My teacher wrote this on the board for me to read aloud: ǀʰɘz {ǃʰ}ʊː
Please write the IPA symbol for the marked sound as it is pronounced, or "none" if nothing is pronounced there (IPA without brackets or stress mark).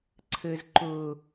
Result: ǃ